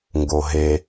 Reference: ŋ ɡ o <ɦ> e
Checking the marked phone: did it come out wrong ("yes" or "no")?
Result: no